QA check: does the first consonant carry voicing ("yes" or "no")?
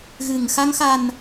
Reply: yes